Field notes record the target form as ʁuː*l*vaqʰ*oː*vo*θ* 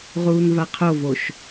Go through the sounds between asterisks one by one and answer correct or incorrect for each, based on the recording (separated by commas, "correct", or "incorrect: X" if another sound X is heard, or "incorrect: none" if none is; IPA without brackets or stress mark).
incorrect: n, incorrect: o, incorrect: ʃ